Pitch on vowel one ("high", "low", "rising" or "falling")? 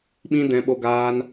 high